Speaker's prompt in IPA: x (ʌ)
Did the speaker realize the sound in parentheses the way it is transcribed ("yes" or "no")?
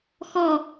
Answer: no